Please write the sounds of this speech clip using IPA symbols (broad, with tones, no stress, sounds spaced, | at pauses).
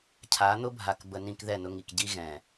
cʰ a˨˦ n̪ ʊ˦ bʱ a˨ k b ə˨ n ĩ˨ k ð ɛ˦˨ n ʊ˦ ŋ i˨ k ɟ i˦ ɣ ɛ̃˨